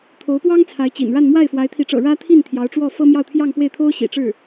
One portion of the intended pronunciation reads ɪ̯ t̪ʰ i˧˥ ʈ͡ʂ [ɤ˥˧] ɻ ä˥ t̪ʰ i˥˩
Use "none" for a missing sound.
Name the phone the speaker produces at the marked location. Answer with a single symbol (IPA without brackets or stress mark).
ɤ̰˨˩